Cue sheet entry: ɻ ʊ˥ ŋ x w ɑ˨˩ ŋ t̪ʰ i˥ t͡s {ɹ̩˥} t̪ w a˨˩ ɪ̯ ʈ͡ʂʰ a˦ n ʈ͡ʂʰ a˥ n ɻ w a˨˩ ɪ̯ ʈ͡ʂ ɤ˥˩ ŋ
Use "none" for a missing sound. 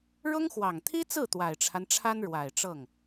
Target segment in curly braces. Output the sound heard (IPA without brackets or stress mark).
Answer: ɹ̩˥˩